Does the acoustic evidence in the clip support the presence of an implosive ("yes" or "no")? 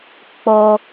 no